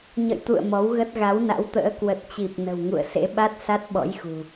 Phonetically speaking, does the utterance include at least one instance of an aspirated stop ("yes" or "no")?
no